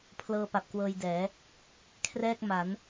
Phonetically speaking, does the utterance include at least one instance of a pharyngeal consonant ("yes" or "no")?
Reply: no